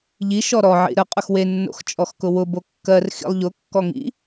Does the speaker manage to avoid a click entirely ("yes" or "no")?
yes